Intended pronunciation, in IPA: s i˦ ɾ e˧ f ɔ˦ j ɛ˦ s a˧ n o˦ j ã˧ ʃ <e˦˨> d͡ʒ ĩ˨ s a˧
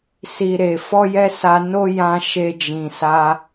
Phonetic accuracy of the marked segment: incorrect: e˧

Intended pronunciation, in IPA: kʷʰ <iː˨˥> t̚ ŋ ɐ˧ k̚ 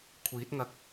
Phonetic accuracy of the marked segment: correct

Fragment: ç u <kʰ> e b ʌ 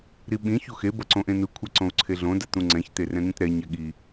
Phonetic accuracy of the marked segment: incorrect: x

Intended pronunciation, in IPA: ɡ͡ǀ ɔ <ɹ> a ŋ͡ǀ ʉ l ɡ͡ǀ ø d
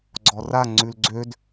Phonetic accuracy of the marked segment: incorrect: r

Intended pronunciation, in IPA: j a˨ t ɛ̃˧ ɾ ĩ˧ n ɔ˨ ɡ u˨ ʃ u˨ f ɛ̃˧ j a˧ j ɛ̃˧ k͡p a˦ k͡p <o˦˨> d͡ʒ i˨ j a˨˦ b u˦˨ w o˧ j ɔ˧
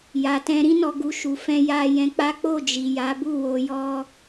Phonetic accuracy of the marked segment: correct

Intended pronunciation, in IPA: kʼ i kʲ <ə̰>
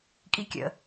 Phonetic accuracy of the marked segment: correct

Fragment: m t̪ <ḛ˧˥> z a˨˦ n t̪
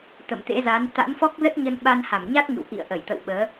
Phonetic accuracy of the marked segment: correct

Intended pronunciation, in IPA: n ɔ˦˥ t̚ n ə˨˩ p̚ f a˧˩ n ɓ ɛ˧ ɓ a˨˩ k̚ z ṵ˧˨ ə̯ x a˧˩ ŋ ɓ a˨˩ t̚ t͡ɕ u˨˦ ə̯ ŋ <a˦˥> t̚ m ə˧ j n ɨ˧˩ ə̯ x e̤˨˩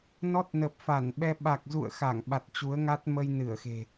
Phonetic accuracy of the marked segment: correct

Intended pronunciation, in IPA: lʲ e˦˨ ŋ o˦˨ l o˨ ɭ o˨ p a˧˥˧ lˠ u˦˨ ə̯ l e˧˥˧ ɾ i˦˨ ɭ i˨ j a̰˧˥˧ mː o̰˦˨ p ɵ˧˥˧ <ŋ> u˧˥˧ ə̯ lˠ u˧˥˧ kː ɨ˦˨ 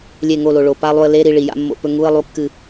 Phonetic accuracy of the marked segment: correct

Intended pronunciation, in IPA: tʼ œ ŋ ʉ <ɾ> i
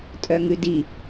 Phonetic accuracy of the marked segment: incorrect: d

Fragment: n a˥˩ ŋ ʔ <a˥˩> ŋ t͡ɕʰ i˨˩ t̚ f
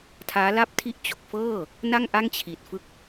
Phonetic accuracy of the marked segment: correct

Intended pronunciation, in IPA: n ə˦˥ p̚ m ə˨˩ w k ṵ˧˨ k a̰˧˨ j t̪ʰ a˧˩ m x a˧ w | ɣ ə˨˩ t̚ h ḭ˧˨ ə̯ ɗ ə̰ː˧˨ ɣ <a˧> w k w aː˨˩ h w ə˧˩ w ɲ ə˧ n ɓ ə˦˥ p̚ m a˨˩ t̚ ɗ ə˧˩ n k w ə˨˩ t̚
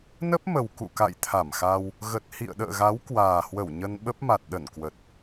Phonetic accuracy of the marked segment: incorrect: a˨˦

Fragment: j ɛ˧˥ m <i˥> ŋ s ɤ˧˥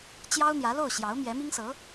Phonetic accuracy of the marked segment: correct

